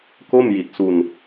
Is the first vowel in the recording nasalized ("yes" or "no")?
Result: no